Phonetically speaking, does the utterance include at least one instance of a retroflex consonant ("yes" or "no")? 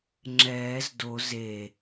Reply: no